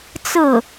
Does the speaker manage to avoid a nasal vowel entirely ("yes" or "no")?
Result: yes